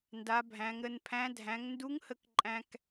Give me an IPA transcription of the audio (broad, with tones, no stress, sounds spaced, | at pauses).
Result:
n d a˩˧ bʱ æ̃˩˧ ŋ ɾ ə˧ n pʰ æ̃˧˥ dʱ æ̃˩˧ ŋ n d u˧˥ ŋ h ə˧ k ǃʼ æ̃˧ k